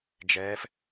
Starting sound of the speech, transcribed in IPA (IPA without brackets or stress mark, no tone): d͡ʒ